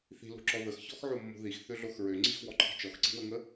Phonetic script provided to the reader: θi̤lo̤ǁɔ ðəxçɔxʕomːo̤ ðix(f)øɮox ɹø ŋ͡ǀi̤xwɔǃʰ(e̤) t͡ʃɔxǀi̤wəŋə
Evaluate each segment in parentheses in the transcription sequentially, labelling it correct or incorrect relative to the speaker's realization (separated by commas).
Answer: incorrect, incorrect